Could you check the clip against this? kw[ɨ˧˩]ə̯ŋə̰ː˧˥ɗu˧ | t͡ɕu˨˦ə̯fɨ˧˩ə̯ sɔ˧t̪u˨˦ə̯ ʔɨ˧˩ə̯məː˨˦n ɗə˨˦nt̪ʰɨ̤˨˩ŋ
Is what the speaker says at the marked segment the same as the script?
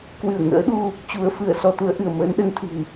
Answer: yes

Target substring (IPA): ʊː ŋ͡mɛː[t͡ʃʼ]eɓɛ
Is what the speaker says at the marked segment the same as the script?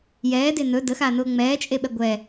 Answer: yes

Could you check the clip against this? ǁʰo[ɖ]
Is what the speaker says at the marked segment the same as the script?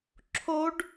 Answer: yes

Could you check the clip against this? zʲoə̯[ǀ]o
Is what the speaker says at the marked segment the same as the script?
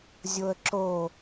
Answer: no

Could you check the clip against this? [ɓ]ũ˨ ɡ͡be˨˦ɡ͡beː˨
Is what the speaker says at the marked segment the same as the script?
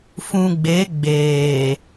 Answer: no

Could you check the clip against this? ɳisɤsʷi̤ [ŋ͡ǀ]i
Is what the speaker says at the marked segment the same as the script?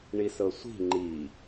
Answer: no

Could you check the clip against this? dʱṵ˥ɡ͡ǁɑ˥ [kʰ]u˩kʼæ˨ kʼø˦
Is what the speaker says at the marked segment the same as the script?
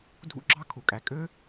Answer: yes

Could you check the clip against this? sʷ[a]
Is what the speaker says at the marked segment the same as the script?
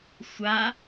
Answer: yes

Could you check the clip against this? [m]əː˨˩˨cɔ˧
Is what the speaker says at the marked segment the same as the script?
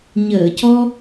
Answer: no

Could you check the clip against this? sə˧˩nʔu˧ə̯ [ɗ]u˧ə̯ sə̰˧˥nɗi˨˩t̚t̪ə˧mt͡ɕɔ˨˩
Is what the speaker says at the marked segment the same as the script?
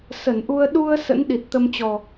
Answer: yes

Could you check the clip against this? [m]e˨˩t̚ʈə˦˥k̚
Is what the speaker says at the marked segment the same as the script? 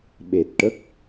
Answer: no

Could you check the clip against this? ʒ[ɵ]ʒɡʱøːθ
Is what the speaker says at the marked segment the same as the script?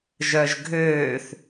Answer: no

